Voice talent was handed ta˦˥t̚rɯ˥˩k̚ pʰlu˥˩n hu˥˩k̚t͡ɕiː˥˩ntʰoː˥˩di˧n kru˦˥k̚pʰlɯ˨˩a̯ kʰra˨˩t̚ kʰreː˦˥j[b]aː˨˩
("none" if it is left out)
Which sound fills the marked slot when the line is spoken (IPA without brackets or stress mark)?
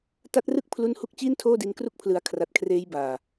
b